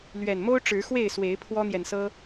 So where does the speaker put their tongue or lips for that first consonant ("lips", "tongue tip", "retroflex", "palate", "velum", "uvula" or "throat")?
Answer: tongue tip